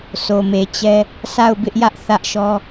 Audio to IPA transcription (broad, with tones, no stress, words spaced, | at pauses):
sʰo˨me˨t͡ɕɛ˦ | sa˦˨ʊ̯bɪ˦ʔjä˦ʔ θä˦ʔʃɔ˦